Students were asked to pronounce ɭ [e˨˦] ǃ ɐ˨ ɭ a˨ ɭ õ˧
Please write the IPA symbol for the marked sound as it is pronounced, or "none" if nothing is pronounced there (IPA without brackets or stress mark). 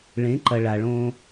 ẽ˨˦